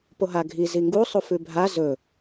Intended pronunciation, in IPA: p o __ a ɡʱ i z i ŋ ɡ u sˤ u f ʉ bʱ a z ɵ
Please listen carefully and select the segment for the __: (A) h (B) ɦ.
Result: B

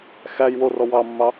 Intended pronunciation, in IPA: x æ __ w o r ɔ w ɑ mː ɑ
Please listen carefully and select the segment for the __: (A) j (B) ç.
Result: A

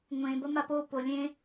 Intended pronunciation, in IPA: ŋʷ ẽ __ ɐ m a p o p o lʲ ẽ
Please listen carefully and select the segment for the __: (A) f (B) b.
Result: B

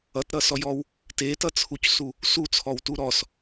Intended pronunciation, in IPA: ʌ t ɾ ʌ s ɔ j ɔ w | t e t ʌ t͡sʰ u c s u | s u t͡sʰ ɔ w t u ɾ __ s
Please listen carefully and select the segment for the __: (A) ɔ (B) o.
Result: A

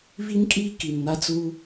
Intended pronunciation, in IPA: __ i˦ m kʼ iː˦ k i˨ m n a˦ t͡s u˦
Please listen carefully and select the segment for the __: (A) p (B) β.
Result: B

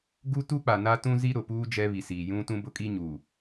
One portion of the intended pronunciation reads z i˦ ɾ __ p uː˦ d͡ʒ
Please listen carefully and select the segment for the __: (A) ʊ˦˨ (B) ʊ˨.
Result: B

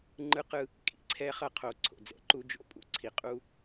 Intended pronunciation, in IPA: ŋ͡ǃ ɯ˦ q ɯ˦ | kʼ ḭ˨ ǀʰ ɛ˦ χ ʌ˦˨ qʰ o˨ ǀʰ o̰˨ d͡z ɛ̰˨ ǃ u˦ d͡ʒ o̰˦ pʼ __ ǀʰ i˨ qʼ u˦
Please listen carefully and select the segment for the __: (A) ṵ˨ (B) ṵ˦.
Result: B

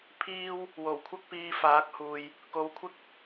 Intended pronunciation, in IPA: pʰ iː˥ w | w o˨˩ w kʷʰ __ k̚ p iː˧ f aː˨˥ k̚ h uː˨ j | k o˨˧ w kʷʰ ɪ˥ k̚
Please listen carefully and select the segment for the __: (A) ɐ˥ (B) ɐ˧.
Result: A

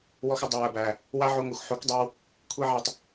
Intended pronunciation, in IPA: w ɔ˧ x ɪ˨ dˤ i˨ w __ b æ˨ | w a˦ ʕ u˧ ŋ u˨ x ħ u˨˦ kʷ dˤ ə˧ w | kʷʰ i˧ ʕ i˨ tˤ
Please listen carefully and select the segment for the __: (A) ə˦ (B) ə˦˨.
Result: B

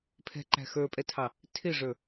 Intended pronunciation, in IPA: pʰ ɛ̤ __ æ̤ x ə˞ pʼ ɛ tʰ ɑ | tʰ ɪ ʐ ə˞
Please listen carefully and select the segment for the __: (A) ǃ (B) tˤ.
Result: A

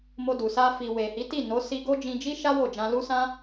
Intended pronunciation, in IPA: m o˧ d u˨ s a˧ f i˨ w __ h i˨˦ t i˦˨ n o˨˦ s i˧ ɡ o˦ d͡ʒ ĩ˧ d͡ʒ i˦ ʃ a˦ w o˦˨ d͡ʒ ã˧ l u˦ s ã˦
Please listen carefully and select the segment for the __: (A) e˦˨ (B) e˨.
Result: B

